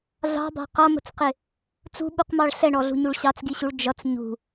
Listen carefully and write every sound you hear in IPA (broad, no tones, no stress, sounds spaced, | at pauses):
ɮ ɑ̤ b ɑ̤ q ʌ m ə̤ t͡s q ɪ | t͡s ṳ ɓ u q m ɑ ɭ ɬ ɛ ɳ ɔ ɮ ṳ ɲ u ɭ ɕ ɑ t͡s ɡ i ɕ u ɭ d͡ʒ ʌ t͡s ɲ ṳ